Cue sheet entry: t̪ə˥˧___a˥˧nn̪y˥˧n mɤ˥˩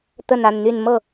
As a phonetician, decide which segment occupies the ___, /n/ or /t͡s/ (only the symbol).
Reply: n